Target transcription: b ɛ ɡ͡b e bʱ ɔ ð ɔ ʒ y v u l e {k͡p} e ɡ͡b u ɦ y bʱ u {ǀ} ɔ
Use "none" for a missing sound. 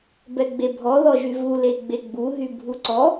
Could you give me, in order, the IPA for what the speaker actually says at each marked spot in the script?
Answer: ɡ͡b, ǀ

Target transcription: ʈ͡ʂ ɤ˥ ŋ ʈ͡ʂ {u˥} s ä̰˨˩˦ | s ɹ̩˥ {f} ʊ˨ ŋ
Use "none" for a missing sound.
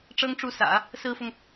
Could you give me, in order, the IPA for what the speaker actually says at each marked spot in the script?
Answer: u˥˩, f

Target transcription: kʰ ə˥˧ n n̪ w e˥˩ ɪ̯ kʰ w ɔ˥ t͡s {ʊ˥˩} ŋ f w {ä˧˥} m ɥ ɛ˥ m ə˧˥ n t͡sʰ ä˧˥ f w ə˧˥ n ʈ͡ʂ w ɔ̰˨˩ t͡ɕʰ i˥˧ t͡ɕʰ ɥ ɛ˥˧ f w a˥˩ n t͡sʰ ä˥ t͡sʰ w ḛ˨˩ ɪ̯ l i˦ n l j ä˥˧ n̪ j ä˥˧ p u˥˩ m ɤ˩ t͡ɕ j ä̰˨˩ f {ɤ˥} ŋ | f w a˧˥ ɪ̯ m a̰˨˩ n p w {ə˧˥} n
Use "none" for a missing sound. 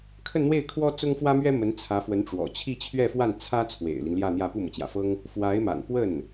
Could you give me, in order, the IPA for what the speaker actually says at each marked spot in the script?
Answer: ʊ˥, ä˥, ɤ˥, ə˥˩

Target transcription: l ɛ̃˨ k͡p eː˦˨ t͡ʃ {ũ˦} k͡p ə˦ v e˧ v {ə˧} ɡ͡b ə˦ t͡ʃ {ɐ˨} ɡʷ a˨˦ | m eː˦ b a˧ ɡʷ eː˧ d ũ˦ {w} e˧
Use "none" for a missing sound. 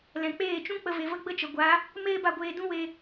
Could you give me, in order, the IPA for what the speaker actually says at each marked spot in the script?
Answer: ũ˦, ə˦, ə˨, w

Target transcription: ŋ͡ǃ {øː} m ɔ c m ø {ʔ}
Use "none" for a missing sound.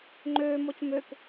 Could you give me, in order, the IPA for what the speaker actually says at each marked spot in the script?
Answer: øː, k

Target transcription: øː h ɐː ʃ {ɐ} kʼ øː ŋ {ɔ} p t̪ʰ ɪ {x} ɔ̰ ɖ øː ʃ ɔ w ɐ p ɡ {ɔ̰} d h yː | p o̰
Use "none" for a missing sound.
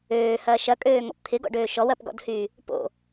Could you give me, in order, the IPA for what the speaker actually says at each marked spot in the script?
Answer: ɐ, ɔ̰, ɡ, ɔ̰

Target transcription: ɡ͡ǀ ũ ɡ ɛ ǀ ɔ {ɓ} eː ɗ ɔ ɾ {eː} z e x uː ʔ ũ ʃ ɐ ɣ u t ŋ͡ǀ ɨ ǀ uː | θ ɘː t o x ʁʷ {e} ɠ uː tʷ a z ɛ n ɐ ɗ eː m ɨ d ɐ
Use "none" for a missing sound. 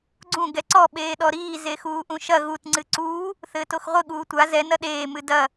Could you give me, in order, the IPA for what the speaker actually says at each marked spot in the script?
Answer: ɓ, iː, ɨ

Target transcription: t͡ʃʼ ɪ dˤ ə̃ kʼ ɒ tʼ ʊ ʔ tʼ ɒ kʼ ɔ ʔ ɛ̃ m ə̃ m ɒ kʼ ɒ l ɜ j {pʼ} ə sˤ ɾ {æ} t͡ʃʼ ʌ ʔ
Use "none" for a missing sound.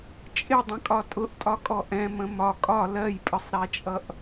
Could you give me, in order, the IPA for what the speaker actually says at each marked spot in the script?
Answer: pʼ, æ

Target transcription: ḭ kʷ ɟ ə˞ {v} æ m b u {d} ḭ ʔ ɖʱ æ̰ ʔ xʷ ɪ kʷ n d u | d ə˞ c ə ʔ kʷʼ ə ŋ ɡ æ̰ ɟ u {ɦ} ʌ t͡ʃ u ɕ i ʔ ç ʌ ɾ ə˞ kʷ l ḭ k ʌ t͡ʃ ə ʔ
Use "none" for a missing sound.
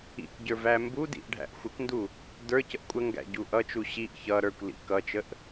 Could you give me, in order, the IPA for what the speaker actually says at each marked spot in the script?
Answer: v, d, ʔ

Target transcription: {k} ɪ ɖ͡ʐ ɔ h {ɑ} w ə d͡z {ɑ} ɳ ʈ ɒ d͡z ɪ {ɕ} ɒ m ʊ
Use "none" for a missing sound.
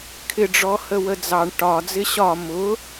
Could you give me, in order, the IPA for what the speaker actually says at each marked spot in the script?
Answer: kʰ, ə, ɑ, ɕ

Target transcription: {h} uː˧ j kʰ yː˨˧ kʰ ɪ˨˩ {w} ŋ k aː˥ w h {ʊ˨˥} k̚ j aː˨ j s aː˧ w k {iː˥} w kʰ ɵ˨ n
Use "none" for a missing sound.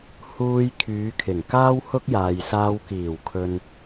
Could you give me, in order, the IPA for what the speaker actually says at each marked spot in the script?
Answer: h, none, ʊ˥, iː˨˩

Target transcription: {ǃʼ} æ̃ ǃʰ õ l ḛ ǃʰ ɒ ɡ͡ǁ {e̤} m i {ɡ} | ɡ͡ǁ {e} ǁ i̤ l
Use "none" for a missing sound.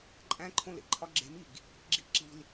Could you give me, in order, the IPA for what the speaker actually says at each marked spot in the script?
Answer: ǃʼ, e̤, ɡ, i

